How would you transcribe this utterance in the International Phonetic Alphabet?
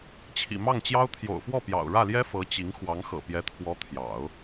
t͡ɕʰḭ˨˩mɑ˥˩ŋt͡ɕjɑ˥ʊ̯ t̪ʰjo̰˨˩ʊ̯fwɔ˥˩pjɑ̰˨˩ʊ̯ ɻä˥˩ljɛ˥ fɤ˧˥t͡ɕi˧˥ŋ xwɑ˧˥ŋxɤ̰˨˩pjɛ˧˥t̪ʰwɔ˧˥ t̪ʰjɑ̰˨˩˦ʊ̯

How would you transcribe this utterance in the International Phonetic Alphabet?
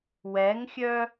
wɛŋxʲœ

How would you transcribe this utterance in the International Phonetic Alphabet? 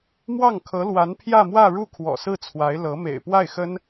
mwɑ˥˩ŋkʰɤ˧˥lwa˧˥n pʰjä˥˧mwä˥˧ɻu˥˩ kʰwɔ̰˨˩sɹ̩˥˩t͡sʰwa˧˥ɪ̯ lɤ˧˥ mḛ˨˩ɪ̯pwa˥˩ɪ̯xə˥n

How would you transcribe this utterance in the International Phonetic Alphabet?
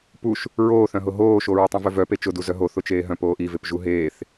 puʃ | ɹoːθœ̃ɦʊ ɦoːʃoɹʊ tˤœ̃vœvœpe t͡ʃʊdu zœɦo θʊt͡ʃeːɦœ̃p oːʔivepʒu ɦeːθ

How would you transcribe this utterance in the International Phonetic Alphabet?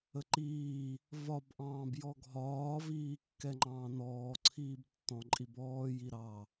əǃiː | vɒbʔɑ̃ːb jɔɡʱɒːviː kːɛŋ͡ǃɑ̃ːnɔː ǀʰiːbtːɔ̃ǃʼibɔː jiɾɑ

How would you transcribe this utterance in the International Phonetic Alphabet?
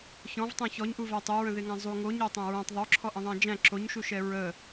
çɔ̃vtˤõ çɔɲʔuvæ tˤøɹə̃ðeŋæ̃ zˤu ŋoɲɜtˤæ̃ ɹõtˤ ðˤoǁʰɔʔə̃ðˤæ̃ d͡ʒæ̃ ǁoɲʃuʃɛ ɹə

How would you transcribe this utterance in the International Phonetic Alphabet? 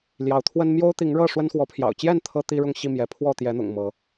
ljɑ˨˦ʊ̯t̪ʰwə˦n mjo˦ʊ̯t̪i˨˦ŋɻɤ˥˨ ʂwə˦nxwɔ˨˦pʰjɑ̰˨˩ʊ̯ t͡ɕjɛ˥˨n t̪ʰɤ˦t̪i˦ ɻʊ˥˨ŋɕi˥˨ mjɛ˨˦ pʰwɔ˥˨t̪jɛ˨˦n̪ʊ̰˨˩ŋ mɤ˨˦

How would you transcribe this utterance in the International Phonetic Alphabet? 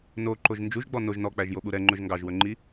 noǃoʒ nd͡ʒuʒɡ͡bɔ noʒ nɔk͡pæʒjoɓu ɾɛŋ͡ǃɵʒ ŋɡɑʒwɵŋ͡ǃi

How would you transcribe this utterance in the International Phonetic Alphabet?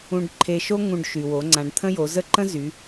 ũ˧ɖǃʰe˧ʃo˥ ŋũ˧ɖʃy˩wo˩˧ ŋ͡ǀã˩˧ɖt̪ʰə̃˥jo˩˧zə˥ ǃə̃˥zy˩˧

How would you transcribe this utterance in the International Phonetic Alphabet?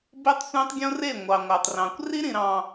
be˦tˤsʷæ̃˦tˤɡʲõ˦re˦˨ ŋʷɑ˨ŋʷæ˨tˤrɑ̃˨kʷ ri˦ɾĩ˨ɾɑ̃˨

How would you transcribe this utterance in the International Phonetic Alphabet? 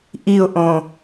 ʔiʊ̯ʔõ

